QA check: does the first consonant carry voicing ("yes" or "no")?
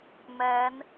yes